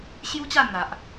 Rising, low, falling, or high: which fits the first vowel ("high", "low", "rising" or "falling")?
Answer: high